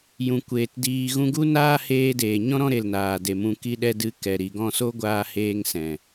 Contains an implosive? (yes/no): yes